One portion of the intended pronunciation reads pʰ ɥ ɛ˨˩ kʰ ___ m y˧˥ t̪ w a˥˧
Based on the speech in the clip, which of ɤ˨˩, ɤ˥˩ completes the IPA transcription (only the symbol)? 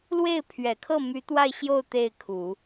ɤ˥˩